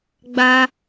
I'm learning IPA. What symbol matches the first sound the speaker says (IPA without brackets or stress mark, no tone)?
ɡ͡b